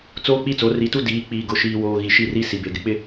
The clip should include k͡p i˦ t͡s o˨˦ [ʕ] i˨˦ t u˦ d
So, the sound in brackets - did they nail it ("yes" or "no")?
no